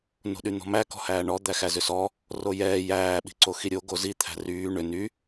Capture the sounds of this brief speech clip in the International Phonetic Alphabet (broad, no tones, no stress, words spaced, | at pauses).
no̤ɗyn̪ɔ̤mæ kɔ̤hæːɳɔ d̪æxæzʏsɔ | rojɛː jæː ɓi̤ǀoxiɾʲo ɡozi t̪ʰæ̤ryː ɳʏ ny